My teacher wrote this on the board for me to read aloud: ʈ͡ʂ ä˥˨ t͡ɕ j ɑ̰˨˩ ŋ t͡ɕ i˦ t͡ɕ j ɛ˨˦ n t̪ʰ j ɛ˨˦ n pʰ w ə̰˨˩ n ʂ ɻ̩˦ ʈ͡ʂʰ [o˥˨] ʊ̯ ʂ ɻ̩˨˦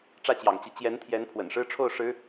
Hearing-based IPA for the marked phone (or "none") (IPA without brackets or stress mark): o˥˨